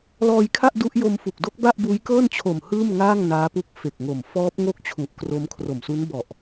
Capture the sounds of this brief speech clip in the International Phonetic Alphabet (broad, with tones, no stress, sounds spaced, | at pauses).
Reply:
l ɔː˧ j kʰ a˥˩ ʔ d u˦˥ ʔ j o˧ m f u˨˩ k̚ d o˦˥ k̚ b a˥˩ ʔ b uː˦˥ j k ɤː˥˩ n t͡ɕʰ o˨˩ m h ɯː˥˩ m ŋ aː˥˩ ŋ n aː˦˥ p u˦˥ k̚ f e˨˩ k̚ ŋ o˨˩ m f ɔː˦˥ p̚ ŋ o˥˩ k̚ t͡ɕʰ u˨˩ ʔ k r o˦˥ m kʰ r o˨˩ m s u˦˥ n b ɔ˨˩ ʔ